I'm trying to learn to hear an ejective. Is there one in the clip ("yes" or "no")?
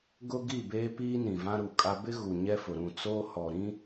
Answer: yes